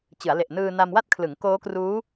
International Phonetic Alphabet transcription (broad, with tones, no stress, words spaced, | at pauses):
t͡ɕɯ˩˦a̯le˨˩ʔnɯː˧ na˧mwa˥˩t̚kʰlɯ˩˦ŋ koː˦˥kruː˦˥